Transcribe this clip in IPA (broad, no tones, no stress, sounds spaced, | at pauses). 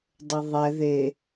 dˤ ə ðˤ ɛ ð e